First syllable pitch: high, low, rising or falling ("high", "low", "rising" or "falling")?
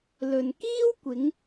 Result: low